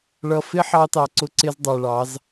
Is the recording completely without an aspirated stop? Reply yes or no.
yes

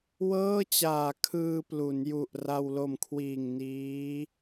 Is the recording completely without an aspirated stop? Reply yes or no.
no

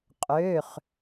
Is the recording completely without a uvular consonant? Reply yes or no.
no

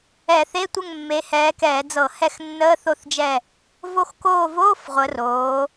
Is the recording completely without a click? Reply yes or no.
yes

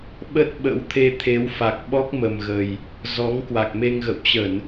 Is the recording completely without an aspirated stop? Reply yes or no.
no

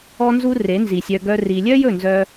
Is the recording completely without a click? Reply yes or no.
yes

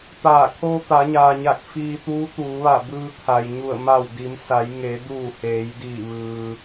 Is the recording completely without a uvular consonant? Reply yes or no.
yes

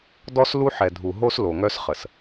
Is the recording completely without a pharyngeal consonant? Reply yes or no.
no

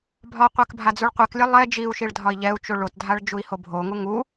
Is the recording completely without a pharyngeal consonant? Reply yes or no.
yes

